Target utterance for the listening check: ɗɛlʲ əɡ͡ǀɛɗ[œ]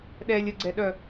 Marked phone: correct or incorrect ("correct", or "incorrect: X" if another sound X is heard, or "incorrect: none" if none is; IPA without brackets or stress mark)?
correct